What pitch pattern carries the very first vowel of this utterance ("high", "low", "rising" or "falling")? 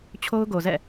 high